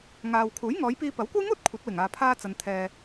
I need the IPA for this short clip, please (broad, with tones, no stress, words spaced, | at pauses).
ŋaː˧w kʰuː˨˥jŋɔː˨˧jpiː˧ pɐ˨˥wkʷɐ˥jŋuː˥t̚ kʷʰɐ˨˥t̚wɪ˨˩ŋ aː˧pʰaː˥t͡sɐ˧n t̪ʰɛː˧